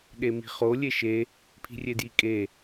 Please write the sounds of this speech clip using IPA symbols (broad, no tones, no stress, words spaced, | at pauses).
ɗemi̤χo lʲeʃe | pʰi̤rʲedjikʼe